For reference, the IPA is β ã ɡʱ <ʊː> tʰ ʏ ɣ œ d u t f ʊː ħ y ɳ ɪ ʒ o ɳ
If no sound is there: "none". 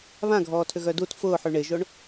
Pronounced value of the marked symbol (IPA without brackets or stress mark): ɔː